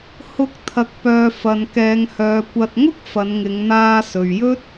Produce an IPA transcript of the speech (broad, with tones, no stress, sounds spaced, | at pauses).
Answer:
h ʊ˨˥ k̚ t̪ʰ ɐ˨ k̚ p œː˨ f ɐ˨ n k ɛː˨˧ ŋ h œː˨˧ kʷ ɐ˨ t̚ ŋ ʊ˥ k̚ f ɐ˨˧ n ŋ ɪ˨˧ ŋ n̪ aː˧ s ɵ˨ ɥ j ɵ˥ t̚